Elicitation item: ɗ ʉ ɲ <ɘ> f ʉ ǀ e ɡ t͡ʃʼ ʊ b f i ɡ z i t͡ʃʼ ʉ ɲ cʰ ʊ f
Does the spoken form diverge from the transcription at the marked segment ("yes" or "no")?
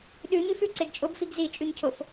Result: yes